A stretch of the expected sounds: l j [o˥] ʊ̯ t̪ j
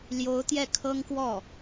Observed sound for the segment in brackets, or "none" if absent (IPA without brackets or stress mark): o˧˥